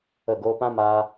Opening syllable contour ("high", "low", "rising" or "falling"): falling